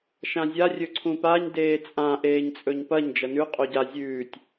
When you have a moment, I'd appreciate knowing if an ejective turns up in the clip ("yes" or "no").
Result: yes